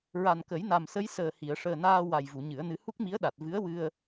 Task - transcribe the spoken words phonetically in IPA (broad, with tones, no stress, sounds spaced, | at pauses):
ɹ a˨˩ n k ə˨˩˦ j n a˨˩ m s ə˧˥ j s əː˨˩ h i˨˩˨ ə̯ ʂ əː˨˩ n aː˧ w a˨˩ j v u˨˩˨ ɲ ɨ˨˩˦ ə̯ n ɨ˧˥ h u˦˥ k̚ m i˧˥ ə̯ ɗ a˨˩ t̚ v ɨ˧˥ ə̯ w ɨ˧ ə̯